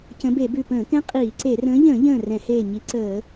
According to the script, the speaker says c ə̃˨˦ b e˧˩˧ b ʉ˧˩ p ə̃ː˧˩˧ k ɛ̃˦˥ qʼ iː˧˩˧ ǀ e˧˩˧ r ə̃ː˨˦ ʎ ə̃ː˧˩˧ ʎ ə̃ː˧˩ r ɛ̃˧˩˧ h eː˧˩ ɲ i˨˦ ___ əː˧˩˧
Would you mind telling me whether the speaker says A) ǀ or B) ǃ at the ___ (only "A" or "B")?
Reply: A